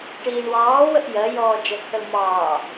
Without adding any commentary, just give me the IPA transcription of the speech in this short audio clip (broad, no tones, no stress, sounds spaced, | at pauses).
ʈ iː ɳ w ɑː w ə ʔ j ɜ j ɔː d͡ʒ ɜ kʰ ə l m ɑː